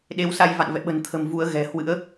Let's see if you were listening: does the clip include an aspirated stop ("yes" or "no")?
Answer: yes